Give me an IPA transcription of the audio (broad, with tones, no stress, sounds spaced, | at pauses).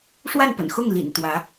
ʂ w a˥˩ n p ə̰˨˩ n x ʊ˥˩ ŋ l ḭ˨˩ n t̪ w ä˧˥